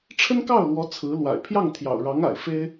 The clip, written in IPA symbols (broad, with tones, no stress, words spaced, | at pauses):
ʈ͡ʂʰə˥nkɑ˥˩ʊ̯lwɔ˧˥ t͡sʰɹ̩˧˥ lwa̰˨˩ɪ̯ pʰjɑ˥˩ŋt̪ʰjɑ̰˨˩ʊ̯ɻɑ˧˥ŋ a̰˨˩ɪ̯fe˥ɪ̯